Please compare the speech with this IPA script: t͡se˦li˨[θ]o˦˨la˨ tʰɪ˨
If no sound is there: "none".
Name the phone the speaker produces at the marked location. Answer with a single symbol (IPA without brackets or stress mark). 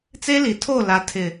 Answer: tʰ